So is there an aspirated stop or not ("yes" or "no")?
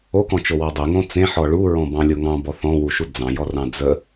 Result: no